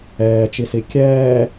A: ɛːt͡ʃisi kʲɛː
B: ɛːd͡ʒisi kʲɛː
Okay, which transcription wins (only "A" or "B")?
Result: A